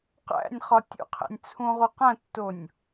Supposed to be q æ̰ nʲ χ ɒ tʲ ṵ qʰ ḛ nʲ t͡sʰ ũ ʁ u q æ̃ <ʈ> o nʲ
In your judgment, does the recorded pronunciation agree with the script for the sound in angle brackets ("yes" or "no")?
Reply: no